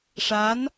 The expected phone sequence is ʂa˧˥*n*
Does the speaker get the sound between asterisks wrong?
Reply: no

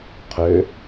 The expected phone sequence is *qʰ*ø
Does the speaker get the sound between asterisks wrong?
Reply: no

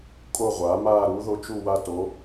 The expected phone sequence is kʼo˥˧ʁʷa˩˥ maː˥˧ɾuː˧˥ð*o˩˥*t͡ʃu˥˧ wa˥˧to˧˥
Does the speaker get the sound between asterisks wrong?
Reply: yes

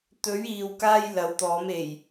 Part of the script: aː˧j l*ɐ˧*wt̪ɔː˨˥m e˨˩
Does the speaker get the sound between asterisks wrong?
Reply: yes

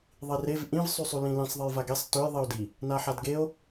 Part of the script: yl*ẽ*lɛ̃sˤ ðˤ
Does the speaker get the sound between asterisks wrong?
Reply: yes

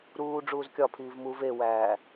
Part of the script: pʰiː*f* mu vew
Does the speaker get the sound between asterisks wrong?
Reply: yes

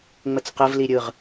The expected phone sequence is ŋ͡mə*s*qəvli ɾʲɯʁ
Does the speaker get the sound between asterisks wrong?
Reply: yes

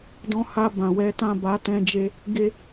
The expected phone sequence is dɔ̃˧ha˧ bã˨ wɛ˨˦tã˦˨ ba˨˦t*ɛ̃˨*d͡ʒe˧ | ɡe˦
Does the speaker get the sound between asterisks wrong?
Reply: yes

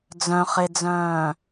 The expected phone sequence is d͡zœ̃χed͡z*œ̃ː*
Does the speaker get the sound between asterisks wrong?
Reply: no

